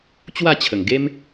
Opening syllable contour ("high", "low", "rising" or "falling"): falling